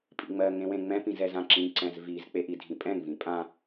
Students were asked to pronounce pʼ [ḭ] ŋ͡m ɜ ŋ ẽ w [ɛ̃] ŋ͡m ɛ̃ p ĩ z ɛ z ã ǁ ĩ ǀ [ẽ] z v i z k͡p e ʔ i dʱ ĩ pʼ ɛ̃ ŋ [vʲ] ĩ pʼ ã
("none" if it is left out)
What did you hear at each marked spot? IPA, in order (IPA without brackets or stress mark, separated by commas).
ḭ, ẽ, ɛ̃, v